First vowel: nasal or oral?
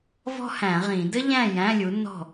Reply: oral